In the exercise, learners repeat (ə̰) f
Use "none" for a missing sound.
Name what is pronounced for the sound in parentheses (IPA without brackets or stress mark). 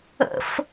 ə̰